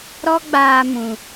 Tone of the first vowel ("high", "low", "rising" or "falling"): high